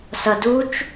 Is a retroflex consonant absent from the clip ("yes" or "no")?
yes